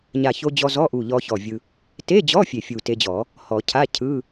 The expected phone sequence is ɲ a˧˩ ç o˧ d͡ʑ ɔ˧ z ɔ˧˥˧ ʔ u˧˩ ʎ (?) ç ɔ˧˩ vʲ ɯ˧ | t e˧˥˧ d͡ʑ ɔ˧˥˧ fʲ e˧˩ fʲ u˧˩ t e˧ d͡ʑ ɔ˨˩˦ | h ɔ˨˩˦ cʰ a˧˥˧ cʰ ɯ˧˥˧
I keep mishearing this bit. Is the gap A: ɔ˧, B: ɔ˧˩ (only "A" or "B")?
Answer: A